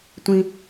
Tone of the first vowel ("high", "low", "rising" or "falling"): high